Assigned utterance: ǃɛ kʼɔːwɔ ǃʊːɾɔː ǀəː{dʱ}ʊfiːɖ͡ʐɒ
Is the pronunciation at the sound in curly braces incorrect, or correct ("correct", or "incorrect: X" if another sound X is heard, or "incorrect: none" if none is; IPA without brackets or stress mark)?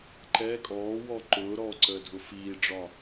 correct